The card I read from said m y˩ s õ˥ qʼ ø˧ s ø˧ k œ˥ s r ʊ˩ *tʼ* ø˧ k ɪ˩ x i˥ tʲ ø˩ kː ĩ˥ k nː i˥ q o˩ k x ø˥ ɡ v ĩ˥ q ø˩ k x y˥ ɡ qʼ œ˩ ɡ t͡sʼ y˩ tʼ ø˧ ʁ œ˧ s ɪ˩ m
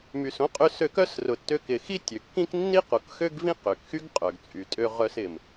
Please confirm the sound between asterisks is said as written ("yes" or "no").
no